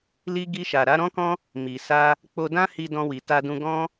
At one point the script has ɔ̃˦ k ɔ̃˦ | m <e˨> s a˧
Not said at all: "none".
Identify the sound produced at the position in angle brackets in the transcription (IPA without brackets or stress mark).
i˨